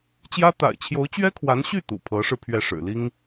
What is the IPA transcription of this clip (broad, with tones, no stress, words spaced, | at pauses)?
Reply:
t͡ɕjä˥ t̪a̰˨˩ɪ̯t͡ɕʰjo˧˥ʊ̯ t͡ɕɥɛ˥kʰwa˧˥nɕy˥˩ t̪ṵ˨˩pʰɤ˧˥ʂɻ̩˧ pʰɥɛ˥˩ʂɻ̩˨˩ li˥ŋ